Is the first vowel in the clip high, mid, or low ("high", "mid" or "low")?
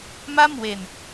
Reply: low